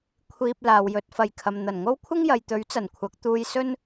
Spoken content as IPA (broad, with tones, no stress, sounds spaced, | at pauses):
kʷʰ iː˨ p̚ l aː˨ w j ɵ˨˥ t̚ f ɐ˨ j kʰ ɐ˨ m n̪ ɐ˨˩ n ŋ o˥ w kʷʰ ɪ˥ ŋ j ɐ˨ j t̪ ɵ˨˥ ɥ t͡s ɐ˨˩ n kʷʰ ɐ˨˥ k̚ t̪ uː˧ j s ɵ˥ n